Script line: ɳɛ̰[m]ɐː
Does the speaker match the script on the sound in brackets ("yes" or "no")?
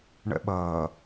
no